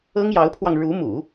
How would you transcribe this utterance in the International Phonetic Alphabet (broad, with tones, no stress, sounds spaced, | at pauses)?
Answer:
ɤ˥ ŋ j ɑ˧˥ ʊ̯ pʰ w ɑ˧ ŋ ɻ u˧˥ m ṵ˨˩˦